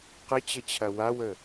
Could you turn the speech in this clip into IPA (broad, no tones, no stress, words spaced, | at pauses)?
qət͡ɕət͡ɕʰɐ wawə